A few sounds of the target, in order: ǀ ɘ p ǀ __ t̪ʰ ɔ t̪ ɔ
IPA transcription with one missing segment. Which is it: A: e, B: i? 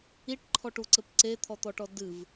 A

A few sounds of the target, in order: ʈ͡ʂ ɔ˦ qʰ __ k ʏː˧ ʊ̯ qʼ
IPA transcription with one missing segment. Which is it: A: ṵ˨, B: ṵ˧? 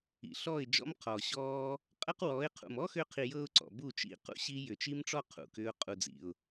A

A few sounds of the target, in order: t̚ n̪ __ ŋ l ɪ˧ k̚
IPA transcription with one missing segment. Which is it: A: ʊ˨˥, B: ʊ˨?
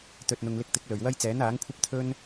B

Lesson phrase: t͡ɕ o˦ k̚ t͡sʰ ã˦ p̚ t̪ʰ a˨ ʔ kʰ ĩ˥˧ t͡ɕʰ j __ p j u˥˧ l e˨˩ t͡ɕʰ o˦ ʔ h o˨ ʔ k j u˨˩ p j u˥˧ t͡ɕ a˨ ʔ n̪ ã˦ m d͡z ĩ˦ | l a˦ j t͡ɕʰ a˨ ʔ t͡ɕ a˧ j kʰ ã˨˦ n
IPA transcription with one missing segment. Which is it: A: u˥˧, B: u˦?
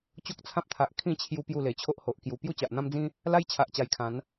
B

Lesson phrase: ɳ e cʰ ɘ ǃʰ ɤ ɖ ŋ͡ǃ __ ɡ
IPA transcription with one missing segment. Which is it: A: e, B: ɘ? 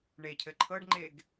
A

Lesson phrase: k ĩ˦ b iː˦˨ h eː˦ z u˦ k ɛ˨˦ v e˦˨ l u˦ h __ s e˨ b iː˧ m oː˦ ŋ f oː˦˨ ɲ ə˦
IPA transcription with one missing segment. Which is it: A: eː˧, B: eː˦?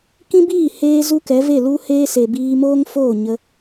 B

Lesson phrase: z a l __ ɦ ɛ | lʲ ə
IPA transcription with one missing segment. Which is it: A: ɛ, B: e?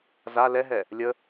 A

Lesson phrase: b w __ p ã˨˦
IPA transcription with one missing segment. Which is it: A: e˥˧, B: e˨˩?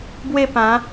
A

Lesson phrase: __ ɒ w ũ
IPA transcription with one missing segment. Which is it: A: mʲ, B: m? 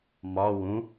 B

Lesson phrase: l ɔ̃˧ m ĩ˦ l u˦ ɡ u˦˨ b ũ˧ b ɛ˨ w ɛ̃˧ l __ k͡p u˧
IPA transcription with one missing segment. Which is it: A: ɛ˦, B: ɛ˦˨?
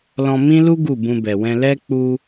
A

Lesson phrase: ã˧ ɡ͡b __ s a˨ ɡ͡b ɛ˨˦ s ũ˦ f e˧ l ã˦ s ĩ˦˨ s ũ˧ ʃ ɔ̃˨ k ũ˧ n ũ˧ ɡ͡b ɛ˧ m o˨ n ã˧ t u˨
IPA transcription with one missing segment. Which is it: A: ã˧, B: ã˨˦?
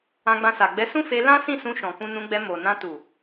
A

